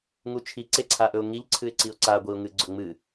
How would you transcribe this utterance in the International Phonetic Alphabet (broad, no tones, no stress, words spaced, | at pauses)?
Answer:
ŋut͡ʃʰi ǀeǀʰaʔɵʊ̯ŋiʎ ǀʰɨɪ̯ǀiʊ̯ǀa ɡʷiʊ̯ŋɨɡ͡ǀɵŋ͡mɨ